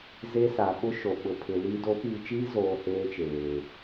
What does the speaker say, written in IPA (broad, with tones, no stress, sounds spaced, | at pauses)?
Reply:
z e˦ s a˨ ɓ ʊ˦ ʃ o˨ ɓ ʊ˨ pʰ ɪ˨ l iː˨ d o˨˦ p iː˨ t͡ʃ iː˦ z oː˦ h eː˦ t͡ʃ eː˨